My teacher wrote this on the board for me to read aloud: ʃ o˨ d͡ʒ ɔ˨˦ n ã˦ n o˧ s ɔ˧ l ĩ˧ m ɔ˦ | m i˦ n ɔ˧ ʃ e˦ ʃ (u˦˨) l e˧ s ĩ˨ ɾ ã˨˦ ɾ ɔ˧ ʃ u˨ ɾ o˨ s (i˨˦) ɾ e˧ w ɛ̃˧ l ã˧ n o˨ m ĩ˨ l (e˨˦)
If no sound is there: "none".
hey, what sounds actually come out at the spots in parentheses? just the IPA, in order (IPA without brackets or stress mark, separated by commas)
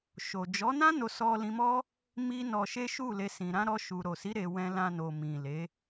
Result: u˦˨, i˨˦, e˨˦